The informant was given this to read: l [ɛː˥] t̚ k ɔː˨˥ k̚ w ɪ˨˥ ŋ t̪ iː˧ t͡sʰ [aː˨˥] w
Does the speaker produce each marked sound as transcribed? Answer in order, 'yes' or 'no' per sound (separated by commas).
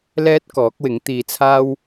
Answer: yes, no